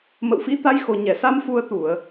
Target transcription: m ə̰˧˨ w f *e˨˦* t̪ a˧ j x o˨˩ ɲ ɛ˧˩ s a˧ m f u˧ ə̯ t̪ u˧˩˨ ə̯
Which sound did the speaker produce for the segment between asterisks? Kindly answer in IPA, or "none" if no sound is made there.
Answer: i˨˦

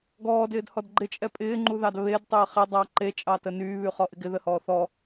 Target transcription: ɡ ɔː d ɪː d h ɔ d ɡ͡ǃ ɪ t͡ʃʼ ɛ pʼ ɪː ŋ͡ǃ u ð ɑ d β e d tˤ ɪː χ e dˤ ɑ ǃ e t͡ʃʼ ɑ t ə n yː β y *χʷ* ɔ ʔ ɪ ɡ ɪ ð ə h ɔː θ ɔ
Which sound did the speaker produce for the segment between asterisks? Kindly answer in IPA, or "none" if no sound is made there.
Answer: χ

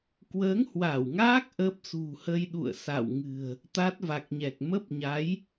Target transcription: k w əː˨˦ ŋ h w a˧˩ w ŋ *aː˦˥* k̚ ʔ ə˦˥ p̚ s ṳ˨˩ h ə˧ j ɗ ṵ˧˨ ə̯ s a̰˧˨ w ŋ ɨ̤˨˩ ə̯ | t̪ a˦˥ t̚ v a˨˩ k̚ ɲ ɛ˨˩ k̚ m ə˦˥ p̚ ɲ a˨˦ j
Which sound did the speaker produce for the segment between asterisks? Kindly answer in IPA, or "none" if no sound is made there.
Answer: aː˦˥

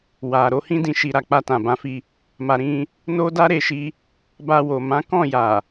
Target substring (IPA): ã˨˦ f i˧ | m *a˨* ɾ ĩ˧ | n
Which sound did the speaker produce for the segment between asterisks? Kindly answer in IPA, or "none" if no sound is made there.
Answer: a˨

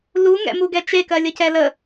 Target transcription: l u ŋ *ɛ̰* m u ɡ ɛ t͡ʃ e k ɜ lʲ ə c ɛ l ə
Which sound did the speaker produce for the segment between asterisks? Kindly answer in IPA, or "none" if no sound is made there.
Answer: ɛ̰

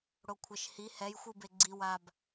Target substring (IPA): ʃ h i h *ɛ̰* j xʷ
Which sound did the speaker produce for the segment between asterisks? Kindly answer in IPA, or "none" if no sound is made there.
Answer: ɛ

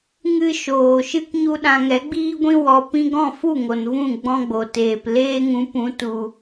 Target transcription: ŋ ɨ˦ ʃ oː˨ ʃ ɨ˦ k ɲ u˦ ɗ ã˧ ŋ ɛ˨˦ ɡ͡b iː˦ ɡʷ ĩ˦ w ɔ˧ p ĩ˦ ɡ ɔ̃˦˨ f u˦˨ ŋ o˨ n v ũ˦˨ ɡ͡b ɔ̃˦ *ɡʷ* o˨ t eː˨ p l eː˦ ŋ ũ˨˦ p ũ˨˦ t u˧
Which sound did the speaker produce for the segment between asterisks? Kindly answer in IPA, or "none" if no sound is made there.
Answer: ɡ͡b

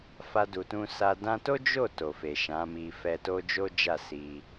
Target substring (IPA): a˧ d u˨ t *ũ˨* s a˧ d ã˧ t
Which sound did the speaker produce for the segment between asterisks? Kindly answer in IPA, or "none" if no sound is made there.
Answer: ũ˧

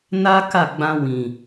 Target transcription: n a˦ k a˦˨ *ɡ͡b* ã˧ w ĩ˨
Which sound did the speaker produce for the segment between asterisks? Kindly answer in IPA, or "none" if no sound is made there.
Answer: ɡ͡b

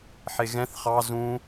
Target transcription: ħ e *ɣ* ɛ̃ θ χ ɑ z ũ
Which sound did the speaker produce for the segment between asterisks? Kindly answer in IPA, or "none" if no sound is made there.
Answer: ɣ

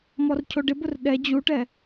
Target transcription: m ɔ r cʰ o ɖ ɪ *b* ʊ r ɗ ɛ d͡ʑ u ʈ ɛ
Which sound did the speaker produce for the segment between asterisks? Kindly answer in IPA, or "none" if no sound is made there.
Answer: b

